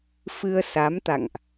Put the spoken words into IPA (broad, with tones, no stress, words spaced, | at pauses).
fɨ˧ə̯sa˨˦mt̪a̰˧˨ŋʔ